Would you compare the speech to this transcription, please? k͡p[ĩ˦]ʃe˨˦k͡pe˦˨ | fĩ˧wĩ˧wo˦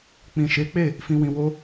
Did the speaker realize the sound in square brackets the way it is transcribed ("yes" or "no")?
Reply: no